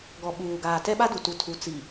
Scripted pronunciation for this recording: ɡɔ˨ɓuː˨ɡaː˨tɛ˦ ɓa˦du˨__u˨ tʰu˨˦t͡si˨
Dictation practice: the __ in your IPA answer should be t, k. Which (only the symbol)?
t